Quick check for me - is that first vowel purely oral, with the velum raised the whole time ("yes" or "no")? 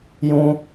no